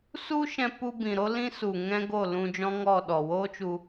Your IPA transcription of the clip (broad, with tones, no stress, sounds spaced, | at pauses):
s u˦ ʃ ɛ̃˧ p u˧ b ĩ˨ ɾ o˦ l ĩ˦ s u˨ ŋ ɛ̃˦ ɡ o˦˨ l ũ˧ d͡ʒ ɔ̃˦ ŋ ɔ˦˨ ɗ ɔ˨ w oː˦ t͡ʃ u˧